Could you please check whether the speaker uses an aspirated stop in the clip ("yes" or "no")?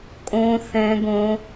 no